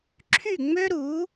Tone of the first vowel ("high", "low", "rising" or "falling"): falling